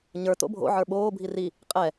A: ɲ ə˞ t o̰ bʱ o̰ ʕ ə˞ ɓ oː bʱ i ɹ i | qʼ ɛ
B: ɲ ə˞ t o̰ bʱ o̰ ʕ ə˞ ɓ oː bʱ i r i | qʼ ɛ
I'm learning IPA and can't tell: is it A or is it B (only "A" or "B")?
B